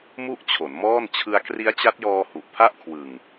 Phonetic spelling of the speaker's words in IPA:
mu˥˩ʔt͡ɕʰo˩˦nmɔː˥˩n t͡ɕʰɯ˧a̯kri˦˥a̯t͡ɕa˦˥t̚jɔː˧ hu˨˩ʔpʰa˥˩ʔkʰwɯ˨˩ŋ

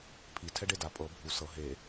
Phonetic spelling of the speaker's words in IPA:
pʰi tʰɛɖeda pʼɤ bʱu sɤ ɦe

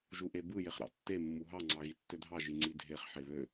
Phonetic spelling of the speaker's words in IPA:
ʒuʔebɯ jeχɾɑ̰tːe mːuɦɑ ŋ͡ǀɑɣitːødʱɑ ʒiŋ͡ǀidʱeχ ħeβø

